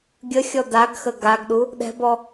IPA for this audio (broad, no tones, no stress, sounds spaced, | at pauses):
ɡʲ ə xʲ ɔ d a ɡ x ə ɡ a ɡ ɗ u | ɗ ɛ̤ b ɔ